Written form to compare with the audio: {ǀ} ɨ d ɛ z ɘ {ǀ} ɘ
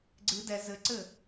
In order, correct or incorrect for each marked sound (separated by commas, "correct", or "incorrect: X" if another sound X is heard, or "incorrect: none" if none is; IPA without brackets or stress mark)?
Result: incorrect: ɡ͡ǀ, correct